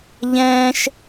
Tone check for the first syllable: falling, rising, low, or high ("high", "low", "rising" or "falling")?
high